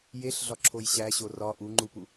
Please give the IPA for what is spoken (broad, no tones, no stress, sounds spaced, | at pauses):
j e ɬ ɮ ɒ ǁʰ o j ɕ æ ɕ o r ɒ ʔ u ŋ͡ǃ u p u